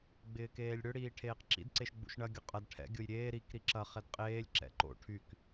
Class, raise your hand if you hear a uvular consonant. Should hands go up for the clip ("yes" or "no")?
yes